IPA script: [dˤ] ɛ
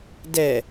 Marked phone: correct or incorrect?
incorrect: d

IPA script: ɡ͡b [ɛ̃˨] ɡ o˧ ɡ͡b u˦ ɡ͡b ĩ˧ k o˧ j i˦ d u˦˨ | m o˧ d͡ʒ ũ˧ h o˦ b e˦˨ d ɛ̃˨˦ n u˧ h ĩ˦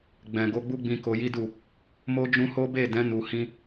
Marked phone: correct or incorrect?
correct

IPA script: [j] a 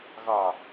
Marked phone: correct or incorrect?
incorrect: ɣ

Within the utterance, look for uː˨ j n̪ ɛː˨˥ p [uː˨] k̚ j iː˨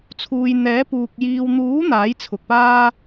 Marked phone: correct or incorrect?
correct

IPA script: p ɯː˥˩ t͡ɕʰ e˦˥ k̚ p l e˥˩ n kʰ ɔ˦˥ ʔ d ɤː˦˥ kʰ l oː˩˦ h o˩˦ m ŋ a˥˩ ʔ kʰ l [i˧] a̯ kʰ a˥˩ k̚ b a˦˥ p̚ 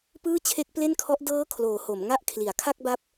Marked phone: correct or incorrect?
incorrect: i˩˦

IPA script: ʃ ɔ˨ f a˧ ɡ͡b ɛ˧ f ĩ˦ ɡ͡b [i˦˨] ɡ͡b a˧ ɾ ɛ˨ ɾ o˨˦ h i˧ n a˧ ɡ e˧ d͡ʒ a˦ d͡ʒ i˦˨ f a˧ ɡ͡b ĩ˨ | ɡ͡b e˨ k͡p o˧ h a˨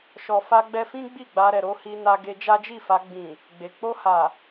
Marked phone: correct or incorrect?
correct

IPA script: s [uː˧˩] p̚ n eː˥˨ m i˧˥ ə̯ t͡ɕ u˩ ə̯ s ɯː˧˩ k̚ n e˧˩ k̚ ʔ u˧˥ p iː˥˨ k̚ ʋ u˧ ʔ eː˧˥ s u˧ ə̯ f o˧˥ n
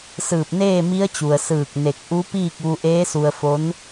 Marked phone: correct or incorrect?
incorrect: ɯː˧˩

